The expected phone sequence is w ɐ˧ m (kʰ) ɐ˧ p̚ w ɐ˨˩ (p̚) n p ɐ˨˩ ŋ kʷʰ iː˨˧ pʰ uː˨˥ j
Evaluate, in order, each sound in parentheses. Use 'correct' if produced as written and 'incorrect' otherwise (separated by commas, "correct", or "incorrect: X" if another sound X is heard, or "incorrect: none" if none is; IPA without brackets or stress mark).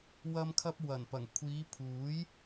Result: correct, incorrect: none